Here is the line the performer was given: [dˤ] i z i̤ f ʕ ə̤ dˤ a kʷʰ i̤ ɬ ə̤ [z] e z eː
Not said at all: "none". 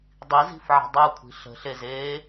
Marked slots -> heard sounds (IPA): dˤ, ɬ

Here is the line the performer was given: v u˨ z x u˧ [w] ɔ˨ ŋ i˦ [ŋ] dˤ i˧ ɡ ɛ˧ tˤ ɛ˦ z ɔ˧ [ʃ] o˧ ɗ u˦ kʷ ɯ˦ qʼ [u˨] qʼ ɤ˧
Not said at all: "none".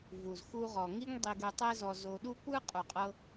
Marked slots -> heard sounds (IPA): ʁ, ŋ, z, u˨

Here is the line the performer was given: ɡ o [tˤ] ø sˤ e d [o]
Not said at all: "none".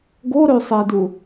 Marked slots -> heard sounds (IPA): ɾ, u

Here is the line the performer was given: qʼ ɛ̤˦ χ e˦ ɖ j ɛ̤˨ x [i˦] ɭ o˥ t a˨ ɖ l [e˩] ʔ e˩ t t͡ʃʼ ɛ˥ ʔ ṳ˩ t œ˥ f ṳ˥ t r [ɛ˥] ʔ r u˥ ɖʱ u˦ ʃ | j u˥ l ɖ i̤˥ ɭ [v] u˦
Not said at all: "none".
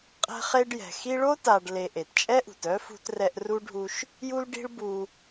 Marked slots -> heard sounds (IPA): i˦, e˨, ɛ˥, b

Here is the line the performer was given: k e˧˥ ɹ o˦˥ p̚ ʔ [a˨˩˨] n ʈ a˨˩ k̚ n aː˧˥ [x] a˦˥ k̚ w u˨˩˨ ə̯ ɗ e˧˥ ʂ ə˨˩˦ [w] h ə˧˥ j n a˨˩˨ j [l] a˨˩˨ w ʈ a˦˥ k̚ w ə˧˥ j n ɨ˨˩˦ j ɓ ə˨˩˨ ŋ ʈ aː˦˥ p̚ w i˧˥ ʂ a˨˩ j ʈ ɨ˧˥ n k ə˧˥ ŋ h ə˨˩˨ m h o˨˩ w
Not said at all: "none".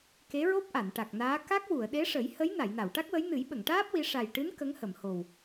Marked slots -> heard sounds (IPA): a˨˩˨, k, j, n

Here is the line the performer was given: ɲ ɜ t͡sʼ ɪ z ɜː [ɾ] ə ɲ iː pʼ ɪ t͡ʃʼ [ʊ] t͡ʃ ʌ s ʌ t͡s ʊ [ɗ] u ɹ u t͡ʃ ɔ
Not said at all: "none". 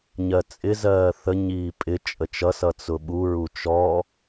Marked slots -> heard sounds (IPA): θ, ə, ɓ

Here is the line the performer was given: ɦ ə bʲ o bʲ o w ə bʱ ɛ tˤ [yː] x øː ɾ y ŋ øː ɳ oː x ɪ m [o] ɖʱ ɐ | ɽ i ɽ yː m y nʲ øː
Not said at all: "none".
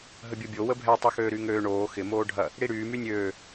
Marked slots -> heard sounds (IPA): y, oː

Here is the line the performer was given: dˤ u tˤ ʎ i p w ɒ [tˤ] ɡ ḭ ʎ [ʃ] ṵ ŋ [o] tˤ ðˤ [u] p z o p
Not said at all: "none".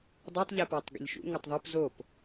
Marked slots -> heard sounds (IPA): tˤ, ʃ, o, u

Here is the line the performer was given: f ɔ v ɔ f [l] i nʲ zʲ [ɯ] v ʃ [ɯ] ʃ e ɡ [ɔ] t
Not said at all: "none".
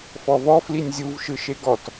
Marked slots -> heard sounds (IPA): l, u, ɯ, ɔ

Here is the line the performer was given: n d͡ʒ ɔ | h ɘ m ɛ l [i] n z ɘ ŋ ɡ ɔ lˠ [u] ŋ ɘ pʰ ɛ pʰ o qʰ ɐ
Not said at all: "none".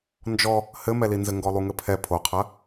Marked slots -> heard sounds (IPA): i, u

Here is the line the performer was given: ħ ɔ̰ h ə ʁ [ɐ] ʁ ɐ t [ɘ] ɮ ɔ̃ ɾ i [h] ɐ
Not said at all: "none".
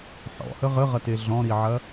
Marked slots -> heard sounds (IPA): ə, e, ʕ

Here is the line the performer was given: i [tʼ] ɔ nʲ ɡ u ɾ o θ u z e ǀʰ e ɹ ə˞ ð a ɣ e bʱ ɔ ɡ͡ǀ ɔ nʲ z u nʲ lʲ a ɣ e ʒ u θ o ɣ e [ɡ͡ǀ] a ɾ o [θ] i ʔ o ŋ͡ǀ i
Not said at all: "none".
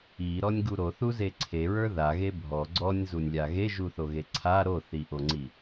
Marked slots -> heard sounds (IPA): ɾ, ǀʰ, θ

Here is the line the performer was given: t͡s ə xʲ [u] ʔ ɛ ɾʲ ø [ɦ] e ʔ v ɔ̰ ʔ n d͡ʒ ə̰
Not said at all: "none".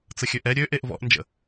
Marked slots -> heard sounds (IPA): ø, ʔ

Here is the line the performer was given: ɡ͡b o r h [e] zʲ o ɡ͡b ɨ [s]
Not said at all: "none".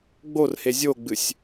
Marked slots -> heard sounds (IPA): e, sʲ

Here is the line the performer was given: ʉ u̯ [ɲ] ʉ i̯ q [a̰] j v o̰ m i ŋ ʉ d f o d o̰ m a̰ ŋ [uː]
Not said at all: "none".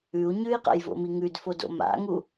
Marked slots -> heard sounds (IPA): ɲ, a̰, u

